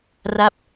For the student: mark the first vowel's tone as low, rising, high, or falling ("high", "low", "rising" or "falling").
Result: falling